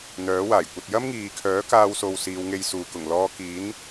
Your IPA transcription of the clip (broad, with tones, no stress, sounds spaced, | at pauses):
n̪ œː˨˥ w aː˨˩ j kʷ ɐ˧ t̚ j ɐ˥ m ŋ iː˨ kʰ œː˨˥ k aː˥ w s o˧ w s iː˨˧ w ŋ e˧ j s uː˨ k ʊ˨˩ ŋ l ɔː˧ k iː˨˥ n